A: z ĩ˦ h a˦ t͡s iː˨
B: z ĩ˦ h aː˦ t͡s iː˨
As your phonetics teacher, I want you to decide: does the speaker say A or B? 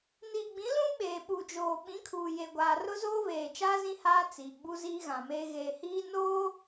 B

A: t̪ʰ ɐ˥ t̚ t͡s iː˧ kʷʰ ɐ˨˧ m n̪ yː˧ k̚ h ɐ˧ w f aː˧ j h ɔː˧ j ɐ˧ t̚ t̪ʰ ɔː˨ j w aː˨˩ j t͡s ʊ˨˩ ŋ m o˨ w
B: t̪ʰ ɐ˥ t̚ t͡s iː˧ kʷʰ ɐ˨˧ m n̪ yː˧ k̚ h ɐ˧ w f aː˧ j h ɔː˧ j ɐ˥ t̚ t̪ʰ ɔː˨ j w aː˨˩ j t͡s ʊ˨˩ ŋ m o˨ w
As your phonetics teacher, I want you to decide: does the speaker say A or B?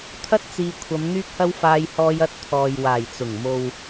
A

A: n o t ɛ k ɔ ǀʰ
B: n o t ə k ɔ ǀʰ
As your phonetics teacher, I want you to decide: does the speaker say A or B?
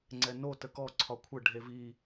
B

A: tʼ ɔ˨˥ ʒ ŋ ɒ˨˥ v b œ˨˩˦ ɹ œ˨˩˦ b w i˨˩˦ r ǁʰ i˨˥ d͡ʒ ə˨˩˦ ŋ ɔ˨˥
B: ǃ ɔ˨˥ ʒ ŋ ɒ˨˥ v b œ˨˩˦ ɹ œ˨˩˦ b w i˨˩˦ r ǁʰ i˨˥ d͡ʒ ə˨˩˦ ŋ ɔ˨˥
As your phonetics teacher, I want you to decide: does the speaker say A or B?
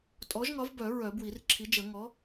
A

